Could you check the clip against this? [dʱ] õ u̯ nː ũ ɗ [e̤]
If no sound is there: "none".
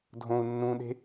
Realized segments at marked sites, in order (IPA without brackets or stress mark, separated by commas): dʱ, e̤